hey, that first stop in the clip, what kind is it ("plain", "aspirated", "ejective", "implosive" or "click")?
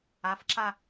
click